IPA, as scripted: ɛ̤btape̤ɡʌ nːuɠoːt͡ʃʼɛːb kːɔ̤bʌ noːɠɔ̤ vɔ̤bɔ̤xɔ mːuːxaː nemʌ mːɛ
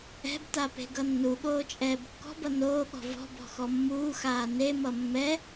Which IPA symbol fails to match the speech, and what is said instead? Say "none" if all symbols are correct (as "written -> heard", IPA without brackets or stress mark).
none